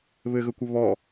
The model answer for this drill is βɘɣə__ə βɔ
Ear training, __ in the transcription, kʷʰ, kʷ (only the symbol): kʷ